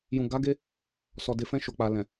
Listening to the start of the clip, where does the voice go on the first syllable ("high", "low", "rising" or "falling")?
low